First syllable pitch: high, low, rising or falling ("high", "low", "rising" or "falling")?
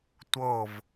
falling